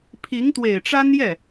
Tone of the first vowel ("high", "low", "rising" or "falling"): rising